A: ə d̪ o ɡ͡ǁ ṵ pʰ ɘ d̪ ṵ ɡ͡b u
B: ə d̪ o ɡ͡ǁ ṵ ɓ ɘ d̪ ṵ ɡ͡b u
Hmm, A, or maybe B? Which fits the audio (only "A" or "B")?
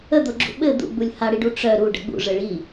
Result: B